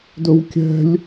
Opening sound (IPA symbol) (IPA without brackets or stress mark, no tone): d